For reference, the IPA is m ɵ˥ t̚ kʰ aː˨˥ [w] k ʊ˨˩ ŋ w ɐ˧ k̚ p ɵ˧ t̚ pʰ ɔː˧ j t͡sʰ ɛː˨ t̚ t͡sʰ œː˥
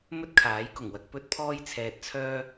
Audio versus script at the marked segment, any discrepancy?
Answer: yes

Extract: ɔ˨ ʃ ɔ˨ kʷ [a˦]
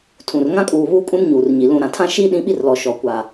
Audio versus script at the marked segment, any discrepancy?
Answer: yes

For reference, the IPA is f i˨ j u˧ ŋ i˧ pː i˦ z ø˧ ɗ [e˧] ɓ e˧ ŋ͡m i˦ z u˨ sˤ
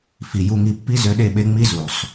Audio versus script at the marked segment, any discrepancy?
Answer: yes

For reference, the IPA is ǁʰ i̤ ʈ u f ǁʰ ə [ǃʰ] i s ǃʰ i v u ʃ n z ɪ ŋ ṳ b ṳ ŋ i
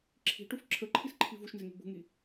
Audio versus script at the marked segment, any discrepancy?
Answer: no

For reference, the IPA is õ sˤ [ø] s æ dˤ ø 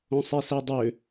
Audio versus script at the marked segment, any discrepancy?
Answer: yes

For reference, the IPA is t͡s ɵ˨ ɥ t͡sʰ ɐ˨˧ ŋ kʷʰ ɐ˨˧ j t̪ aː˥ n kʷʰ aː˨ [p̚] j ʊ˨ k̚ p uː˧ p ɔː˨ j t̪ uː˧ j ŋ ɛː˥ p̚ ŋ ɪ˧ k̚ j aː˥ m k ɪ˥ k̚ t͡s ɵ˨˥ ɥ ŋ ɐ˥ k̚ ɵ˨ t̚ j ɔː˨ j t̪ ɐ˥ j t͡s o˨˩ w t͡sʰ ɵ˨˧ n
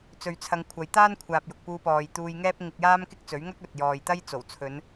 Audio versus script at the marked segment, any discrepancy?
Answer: no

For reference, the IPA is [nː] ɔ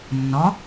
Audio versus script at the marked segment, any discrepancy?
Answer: no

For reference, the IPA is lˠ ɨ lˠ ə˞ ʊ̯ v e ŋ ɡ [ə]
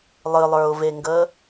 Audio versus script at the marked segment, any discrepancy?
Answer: no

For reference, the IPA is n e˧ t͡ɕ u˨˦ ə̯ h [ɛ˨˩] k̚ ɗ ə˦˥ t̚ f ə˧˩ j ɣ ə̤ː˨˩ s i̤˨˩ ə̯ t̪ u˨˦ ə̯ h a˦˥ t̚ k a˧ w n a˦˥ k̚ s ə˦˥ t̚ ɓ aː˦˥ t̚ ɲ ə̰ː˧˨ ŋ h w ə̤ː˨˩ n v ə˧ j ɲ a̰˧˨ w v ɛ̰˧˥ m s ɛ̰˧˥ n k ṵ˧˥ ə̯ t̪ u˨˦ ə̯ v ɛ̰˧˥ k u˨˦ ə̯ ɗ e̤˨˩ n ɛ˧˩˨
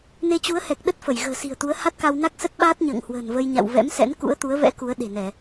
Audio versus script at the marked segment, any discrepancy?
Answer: no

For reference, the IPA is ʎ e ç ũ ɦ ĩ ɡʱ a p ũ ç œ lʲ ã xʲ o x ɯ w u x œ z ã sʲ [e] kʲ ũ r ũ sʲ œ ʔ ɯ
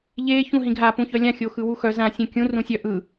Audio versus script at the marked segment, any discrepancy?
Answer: yes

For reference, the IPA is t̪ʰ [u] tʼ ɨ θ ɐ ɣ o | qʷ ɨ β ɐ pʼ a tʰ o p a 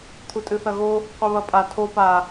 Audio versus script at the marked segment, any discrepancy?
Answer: no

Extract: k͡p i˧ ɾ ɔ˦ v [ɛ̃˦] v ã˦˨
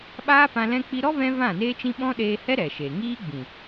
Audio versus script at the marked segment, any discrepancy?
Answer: no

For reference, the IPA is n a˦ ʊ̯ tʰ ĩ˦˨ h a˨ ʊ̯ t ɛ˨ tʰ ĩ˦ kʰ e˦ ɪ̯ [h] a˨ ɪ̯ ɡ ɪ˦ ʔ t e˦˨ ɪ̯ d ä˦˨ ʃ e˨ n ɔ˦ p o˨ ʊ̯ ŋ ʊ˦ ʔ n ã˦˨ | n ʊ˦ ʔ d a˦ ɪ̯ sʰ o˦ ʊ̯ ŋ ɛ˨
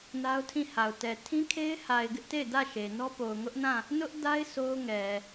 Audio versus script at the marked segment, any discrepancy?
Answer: no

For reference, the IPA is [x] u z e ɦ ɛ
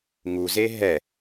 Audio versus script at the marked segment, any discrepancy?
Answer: yes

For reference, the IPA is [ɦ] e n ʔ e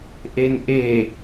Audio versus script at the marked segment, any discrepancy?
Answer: yes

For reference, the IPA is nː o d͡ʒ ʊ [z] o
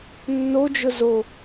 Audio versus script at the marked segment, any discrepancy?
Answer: no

